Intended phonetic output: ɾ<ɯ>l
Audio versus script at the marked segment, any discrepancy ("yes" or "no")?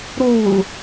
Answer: yes